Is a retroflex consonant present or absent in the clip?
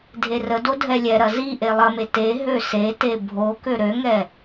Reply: absent